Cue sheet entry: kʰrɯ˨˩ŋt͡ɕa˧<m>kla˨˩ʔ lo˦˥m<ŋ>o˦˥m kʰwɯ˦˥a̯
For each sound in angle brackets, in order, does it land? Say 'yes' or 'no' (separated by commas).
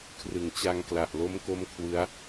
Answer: no, no